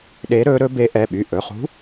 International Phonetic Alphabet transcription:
ɗ eː˧˥ ɾ ɵː˧˥ ɾ ɵ˧˥ b e˧˥ ʔ ɛ˩˧˩ ɓ y˩˧˩ ʔ ɵ˩˧˩ χ ṳ˧˥

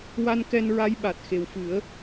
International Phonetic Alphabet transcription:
w a˧ n k ɛ˧ n ɹ a˧˥ j ɓ a˨˩ t̚ x e˨˩ w f ɨ˨˩˦ ə̯

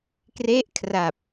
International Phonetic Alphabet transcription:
k r e˦˥ ʔ kʰ r a˨˩ p̚

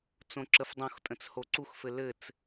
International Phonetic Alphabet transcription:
t͡s õ ǁ ə f dˤ õ x tʼ ə̃ t͡s h o ǀ u x f ɘ l ɘ t͡s

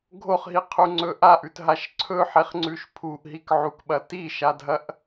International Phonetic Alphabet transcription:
ɡʱ o χ ɦ i qʰ u ŋ͡ǀ ɵ ʔ a ʔ ʉ t ɦ a ʃ ǀʰ ɵ ħ e χ ŋ͡ǀ ʉ ʃ pʰ u ʔ ɦ i k ʕ u k ɓ ɐ t i ʃ a dʱ ɐ ʔ

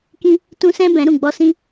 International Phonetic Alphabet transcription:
k ĩ˦ | t ũ˦ s ɛ̃˦ b ɛ̃˨˦ ɾ ũ˨ ɡ͡b ɔ˧ s ĩ˦

